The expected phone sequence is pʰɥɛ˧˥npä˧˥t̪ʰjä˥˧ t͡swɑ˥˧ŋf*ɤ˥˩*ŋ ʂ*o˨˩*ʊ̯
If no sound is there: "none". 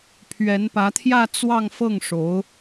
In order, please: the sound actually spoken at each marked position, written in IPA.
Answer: ɤ˥˩, o˧˥

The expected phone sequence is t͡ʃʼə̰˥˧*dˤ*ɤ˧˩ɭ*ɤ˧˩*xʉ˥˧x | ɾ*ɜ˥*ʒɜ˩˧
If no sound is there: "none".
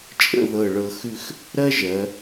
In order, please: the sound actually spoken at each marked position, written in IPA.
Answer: ð, ɤ˧, ɜ˥

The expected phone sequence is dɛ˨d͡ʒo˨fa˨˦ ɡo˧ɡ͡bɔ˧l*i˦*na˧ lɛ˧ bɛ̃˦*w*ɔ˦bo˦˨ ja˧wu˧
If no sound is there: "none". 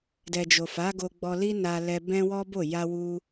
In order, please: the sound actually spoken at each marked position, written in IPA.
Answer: i˦, w

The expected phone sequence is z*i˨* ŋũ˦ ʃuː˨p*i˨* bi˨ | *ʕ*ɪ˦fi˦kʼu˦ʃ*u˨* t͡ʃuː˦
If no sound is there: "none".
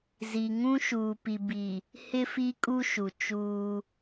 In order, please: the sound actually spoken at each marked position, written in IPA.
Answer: i˨, i˨, h, u˨

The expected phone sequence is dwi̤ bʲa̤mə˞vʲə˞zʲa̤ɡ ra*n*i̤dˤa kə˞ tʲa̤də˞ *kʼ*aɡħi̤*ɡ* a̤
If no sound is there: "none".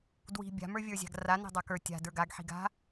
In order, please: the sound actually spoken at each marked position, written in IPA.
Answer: n, ɡ, ɡ

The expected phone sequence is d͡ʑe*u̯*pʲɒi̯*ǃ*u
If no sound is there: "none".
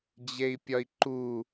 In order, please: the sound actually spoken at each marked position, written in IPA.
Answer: i̯, ǃ

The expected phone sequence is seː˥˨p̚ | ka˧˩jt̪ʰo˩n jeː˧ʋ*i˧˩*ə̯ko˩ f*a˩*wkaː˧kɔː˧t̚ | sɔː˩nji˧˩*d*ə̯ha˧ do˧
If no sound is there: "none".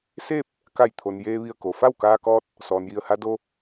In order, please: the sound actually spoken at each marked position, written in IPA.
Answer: i˧˩, a˥˨, none

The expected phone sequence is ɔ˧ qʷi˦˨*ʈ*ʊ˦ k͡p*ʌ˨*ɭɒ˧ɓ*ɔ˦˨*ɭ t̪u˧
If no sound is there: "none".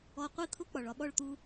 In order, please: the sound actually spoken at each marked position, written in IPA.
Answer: t̪ʰ, ɒ˨, ɔ˦˨

